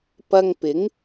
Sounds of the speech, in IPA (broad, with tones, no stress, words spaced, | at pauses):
pɐ˧ŋpɪ˨˥ŋ